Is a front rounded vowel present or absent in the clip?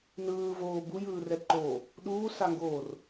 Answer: absent